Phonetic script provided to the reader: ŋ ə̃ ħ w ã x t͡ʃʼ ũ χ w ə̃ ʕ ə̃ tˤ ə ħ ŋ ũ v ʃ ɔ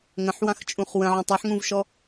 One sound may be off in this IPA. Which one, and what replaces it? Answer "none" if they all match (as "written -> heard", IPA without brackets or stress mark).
none